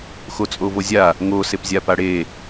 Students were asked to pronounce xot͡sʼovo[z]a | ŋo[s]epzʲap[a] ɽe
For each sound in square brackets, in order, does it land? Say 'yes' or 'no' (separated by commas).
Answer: no, yes, yes